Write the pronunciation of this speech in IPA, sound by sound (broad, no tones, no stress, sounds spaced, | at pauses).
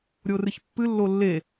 ɾʲ o r ɨ ç pː ɨ lː o lː e